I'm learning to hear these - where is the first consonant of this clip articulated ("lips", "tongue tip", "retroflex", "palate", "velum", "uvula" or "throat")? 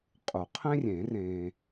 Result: uvula